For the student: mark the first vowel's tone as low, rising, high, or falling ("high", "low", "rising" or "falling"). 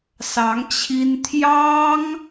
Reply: rising